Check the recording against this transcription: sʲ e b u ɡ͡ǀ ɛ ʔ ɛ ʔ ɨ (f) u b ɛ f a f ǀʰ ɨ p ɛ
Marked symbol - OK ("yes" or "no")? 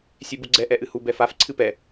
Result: no